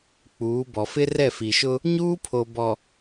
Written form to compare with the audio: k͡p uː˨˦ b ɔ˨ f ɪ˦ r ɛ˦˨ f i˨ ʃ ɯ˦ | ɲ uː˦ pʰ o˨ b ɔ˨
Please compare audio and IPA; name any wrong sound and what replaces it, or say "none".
ɯ˦ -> ʊ˦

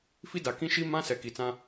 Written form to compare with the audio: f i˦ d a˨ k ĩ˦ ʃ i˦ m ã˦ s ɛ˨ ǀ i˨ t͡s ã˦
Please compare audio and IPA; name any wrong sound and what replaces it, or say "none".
ǀ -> k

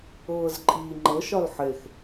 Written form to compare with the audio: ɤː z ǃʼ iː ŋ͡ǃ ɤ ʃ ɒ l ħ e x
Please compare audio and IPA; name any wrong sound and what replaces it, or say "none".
none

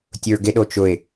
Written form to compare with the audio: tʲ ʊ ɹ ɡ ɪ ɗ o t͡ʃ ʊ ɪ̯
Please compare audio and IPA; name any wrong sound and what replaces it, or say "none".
none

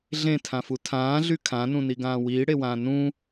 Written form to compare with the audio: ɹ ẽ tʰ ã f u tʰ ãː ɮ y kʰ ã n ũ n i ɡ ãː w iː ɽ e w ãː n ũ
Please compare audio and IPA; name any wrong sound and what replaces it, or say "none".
ɹ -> ɮ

